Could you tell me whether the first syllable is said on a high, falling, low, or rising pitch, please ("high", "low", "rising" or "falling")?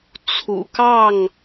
low